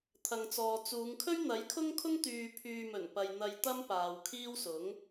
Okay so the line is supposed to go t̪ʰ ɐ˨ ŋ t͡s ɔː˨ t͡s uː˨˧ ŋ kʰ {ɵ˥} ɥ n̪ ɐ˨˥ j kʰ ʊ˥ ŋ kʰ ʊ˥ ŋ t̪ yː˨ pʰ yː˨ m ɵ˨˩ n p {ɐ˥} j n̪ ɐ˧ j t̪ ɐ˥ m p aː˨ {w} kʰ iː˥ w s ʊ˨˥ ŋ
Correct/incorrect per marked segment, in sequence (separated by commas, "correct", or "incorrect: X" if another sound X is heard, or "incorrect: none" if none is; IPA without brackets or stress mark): correct, incorrect: ɐ˨, correct